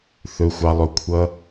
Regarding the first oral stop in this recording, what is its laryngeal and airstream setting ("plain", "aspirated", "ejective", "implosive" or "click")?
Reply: aspirated